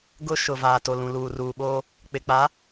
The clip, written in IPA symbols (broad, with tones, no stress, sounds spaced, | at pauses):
ɡ ʊ˦ ʃ ʊ˨ v aː˨ t o˨ l ũ˨ l uː˨ r uː˨ ɓ oː˦ | k͡p ɪ˨ k͡p a˨˦